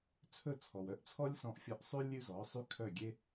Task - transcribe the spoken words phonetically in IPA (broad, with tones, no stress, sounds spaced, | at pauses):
t͡sʰ ɵ˥˩ t͡sʰ ɔ˩ w œ˥˩ ʔ t͡sʰ ɔ˥ lʲ s ɔ̃˧ ʔ fʲ ɔ˧ ʔ sˤ ʉ˥ lʲ ʉ˥ z ɔ˩˥ sˤ y˥ kʰ œ˥˩ ɡʲ e˥